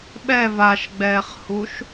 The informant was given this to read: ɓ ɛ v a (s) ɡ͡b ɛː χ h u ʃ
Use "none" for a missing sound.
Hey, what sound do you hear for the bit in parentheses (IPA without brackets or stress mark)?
ʃ